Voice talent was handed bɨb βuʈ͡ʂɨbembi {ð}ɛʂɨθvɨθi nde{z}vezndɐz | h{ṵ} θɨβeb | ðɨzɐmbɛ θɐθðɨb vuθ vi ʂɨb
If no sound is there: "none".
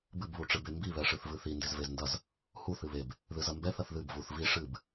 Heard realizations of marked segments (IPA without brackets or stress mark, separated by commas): β, z, u